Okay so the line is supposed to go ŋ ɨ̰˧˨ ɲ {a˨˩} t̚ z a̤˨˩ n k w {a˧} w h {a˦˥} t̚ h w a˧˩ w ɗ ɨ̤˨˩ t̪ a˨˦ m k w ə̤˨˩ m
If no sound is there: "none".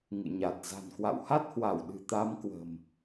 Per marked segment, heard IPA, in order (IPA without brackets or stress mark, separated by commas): a˨˩, a̰˧˨, a˦˥